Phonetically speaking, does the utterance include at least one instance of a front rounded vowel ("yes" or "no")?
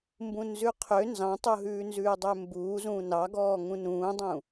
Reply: yes